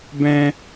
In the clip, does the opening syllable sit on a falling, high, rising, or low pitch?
high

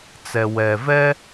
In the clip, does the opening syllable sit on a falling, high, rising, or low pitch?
low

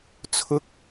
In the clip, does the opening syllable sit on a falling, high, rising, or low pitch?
high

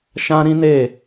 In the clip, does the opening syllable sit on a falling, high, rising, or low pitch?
high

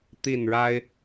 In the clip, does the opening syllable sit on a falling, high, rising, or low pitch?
falling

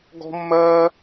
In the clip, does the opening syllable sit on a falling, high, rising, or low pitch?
high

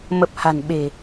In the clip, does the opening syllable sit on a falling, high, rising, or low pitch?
low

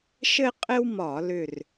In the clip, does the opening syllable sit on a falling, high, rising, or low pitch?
high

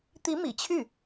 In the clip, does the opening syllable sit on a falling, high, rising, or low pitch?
rising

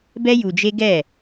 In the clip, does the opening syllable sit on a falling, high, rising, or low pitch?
high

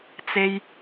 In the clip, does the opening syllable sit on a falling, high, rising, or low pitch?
high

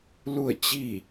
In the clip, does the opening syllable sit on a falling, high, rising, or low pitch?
falling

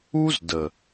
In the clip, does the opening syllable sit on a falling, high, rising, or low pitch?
high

